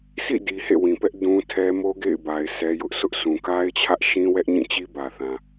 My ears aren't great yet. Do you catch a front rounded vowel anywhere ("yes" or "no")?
no